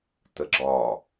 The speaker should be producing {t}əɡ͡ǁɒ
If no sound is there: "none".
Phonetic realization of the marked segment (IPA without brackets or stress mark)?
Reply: t